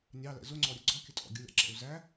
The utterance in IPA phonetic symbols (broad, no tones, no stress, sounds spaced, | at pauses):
nʲ ɑ l ɛ̰ z ʊ ŋ͡ǀ ɔ ɾʲ ə ɡ͡ǀ ɔ kʲ ə tʼ ɔ̰ ɡʲ ʊ lʲ ɑ̰ ǁ ɛ̰ u̯ z æ